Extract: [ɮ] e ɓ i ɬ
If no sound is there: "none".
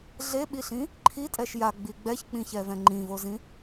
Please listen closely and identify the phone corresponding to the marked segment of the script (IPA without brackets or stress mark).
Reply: ɮ